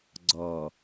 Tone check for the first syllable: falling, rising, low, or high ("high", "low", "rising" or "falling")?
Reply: low